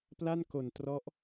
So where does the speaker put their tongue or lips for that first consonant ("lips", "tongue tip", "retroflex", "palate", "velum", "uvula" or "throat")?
lips